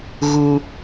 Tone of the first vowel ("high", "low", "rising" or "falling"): high